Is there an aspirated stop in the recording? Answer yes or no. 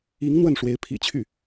yes